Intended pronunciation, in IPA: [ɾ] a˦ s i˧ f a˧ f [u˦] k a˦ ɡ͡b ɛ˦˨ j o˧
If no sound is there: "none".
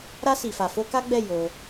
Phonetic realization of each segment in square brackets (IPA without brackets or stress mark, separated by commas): ɾ, o˦